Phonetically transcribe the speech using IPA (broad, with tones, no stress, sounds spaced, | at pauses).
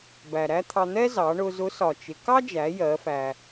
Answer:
b æ˩ ɾ æ˥ t̪ʰ ɑ˧ n̪ ɛ˥ z ɑ˩˧ ɳ ʊ˧ z ʊ˧˥ s ɒ˩ t͡ʃ ɪ˩˧ k ɑ˥ d͡ʒ æ˩˧ j ɜ˩˧ f æ˩